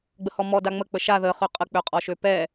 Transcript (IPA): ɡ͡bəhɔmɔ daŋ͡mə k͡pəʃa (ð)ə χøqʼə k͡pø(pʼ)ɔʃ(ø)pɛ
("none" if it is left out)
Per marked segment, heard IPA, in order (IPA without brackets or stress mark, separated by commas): ð, qʼ, ø